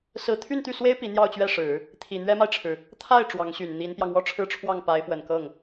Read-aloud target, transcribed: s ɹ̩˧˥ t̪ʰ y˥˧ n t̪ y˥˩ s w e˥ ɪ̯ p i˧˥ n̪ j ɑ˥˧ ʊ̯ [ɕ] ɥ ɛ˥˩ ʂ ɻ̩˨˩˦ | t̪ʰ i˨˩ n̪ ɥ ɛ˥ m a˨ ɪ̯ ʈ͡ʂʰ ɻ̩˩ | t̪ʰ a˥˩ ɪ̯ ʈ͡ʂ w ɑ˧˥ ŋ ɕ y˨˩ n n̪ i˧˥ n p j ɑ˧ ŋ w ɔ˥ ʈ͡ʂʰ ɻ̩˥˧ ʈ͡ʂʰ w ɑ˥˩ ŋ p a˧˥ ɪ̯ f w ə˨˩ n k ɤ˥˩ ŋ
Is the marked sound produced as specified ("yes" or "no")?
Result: no